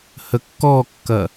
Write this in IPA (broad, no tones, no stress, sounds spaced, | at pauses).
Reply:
h ə kː ɔ kː ɐ